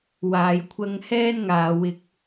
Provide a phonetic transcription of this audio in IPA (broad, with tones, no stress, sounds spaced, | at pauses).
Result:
w aː˨ j kʷʰ ɐ˥ ŋ h ɛː˥ n ŋ aː˨ w ɪ˧ k̚